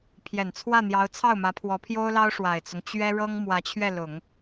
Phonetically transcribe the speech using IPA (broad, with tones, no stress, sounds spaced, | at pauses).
pʰ j ɛ˨˩ n t͡sʰ w ä˥˩ n̪ j ɑ˧˥ ʊ̯ t͡sʰ ɑ˥˩ ʊ̯ m ä˧˥ pʰ w ɔ˧˥ pʰ j o˥ ʊ̯ l ɑ˥ ʊ̯ ʂ w a˨˩ ɪ̯ t͡s ʊ˦ ŋ t͡ɕ ɥ ɛ˥ ɻ ɤ˥ ŋ m w ä˧˥ t͡ɕʰ ɥ ɛ˥˩ l ʊ˨˩˦ ŋ